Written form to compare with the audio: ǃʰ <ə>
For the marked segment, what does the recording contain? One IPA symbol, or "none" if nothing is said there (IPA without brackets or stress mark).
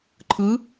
ɯ